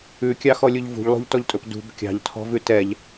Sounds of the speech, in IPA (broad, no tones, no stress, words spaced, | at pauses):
ʉkʲɑxɔlʲuʎ vṳʎlˠṳʎtɔʎtʼɵp dṳb kʲɑ̤ʎtʰɔ̤vʉ tɛʎ